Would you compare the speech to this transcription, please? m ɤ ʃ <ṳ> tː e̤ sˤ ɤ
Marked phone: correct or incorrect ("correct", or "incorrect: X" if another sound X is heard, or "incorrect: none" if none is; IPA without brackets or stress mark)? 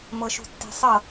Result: correct